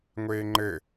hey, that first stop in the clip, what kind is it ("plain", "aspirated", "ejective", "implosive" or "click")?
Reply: click